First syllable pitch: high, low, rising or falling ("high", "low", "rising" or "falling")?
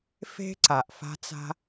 high